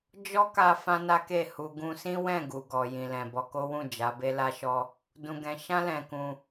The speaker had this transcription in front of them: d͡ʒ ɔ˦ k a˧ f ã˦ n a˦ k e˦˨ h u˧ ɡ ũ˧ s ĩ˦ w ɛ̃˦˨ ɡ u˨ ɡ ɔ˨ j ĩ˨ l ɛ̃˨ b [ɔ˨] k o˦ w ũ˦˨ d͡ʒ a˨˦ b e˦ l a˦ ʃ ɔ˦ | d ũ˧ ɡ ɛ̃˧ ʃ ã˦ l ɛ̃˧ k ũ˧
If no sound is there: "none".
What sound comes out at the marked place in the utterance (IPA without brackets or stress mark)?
ɔ˧